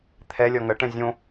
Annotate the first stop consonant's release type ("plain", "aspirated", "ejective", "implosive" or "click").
aspirated